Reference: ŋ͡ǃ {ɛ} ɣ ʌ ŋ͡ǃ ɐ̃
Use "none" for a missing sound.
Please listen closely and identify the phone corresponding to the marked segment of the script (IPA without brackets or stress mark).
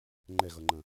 ɛ